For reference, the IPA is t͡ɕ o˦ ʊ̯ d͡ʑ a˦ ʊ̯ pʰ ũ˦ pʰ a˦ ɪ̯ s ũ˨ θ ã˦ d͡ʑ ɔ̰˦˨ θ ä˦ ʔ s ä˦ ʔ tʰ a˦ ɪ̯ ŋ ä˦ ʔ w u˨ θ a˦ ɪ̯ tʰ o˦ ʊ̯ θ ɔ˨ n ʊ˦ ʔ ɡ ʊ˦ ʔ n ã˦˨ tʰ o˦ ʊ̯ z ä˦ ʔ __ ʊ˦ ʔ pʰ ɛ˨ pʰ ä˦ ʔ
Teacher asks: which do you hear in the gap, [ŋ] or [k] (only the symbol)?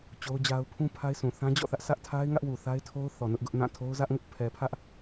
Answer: ŋ